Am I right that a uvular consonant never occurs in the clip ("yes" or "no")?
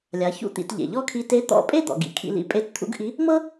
yes